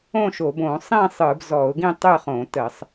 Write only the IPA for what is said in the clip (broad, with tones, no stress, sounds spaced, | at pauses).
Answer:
õ˥˨ ʃ o˧˩˧ b õ˧˩˧ sˤ ĩ˥˨ sˤ ɯ˧˩˧ b z ɔ˧˩˧ ʊ̯ ɡ ĩ˥˨ tˤ ɨ˥˨ χ õ˧˩˧ t ə˧˩˧ sˤ